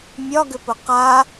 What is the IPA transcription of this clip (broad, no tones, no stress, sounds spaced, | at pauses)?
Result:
mʲ ɒ ɡ ʏ p ʊ q a